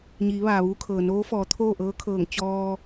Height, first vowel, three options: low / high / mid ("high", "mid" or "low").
high